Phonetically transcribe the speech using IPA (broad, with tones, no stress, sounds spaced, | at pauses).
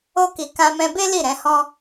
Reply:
o˦ k i˧ k ã˧ m ɛ̃˧ b e˦ l i˦˨ ɾ ɛ̃˨˦ h ɔ̃˦